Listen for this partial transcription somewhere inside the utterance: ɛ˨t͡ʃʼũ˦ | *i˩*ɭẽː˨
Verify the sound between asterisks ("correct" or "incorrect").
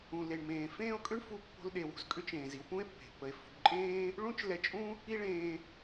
incorrect